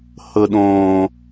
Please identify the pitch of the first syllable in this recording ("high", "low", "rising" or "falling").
low